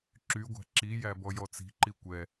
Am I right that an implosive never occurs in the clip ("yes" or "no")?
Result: yes